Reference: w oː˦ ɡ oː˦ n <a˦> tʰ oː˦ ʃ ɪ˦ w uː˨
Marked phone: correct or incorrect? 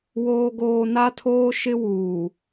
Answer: correct